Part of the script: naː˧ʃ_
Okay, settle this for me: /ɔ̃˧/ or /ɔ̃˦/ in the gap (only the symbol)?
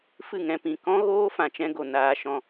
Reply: ɔ̃˧